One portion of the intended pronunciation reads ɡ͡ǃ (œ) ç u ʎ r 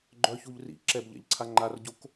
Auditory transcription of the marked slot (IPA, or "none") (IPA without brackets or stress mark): œ